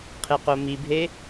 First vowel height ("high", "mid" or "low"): mid